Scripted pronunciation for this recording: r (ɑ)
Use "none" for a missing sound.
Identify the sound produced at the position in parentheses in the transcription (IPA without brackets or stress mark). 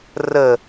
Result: ə